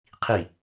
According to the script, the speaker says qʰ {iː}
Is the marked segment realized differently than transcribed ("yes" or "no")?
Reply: yes